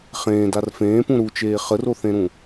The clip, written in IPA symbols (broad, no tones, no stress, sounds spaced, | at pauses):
χ ẽː d a r f ẽː p ũ ɾ u t͡ʃ eː χ ə r o θ ẽ ɾ ũ